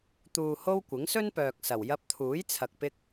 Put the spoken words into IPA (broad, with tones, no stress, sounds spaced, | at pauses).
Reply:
t̪ uː˨ h o˧ w kʷ ɪ˨˥ ŋ s ɵ˥ n p œː˨ k̚ s ɐ˨˩ w j ɐ˧ p̚ t̪ʰ uː˨˥ j t͡sʰ ɐ˨ k̚ p ɪ˧ k̚